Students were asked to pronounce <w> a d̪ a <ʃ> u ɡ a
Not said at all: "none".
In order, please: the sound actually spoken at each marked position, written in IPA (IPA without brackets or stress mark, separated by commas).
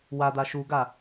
w, ʃ